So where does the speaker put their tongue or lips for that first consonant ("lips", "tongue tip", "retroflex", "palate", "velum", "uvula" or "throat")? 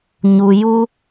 palate